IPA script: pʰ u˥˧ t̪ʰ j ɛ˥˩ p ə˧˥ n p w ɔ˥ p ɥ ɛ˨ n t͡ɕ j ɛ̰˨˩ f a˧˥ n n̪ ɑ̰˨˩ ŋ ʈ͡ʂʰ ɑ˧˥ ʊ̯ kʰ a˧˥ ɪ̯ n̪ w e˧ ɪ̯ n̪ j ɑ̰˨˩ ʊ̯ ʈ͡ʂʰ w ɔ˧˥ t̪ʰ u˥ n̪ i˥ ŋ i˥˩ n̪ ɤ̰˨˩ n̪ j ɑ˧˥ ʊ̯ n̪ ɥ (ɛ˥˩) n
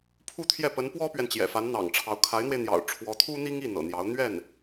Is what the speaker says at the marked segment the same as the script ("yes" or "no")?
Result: yes